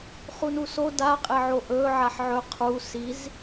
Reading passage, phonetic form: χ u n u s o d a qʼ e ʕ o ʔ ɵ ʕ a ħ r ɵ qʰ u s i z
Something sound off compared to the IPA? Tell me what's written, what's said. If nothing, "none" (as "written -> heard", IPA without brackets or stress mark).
r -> ʕ